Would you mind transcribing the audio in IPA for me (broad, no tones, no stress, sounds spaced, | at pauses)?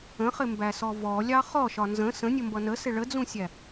ə̃ χ ɪ m b æ s ɔ v ɔ lʲ ɑ χ ɔ ʃ ɒ n z ə̃ s ə̃ nʲ ə m b ʌ n ə s ɪ ɭ ə d͡z ũ sʲ æ